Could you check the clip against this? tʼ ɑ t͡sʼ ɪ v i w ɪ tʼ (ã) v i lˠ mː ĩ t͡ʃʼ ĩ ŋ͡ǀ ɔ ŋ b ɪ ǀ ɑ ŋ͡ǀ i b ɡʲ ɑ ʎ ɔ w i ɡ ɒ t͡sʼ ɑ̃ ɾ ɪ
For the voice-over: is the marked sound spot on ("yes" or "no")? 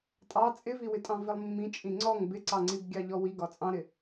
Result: no